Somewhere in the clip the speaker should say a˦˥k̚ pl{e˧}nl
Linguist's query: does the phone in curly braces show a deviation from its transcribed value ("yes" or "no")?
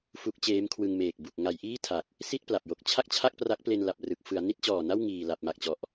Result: no